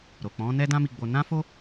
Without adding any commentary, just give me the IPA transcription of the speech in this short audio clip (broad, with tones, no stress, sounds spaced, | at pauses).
ɾ o˨ k͡p ɔ̃˨˦ n ɛ˦ d ã˦ m i˧ ɡ͡b o˧ n ã˦ f o˦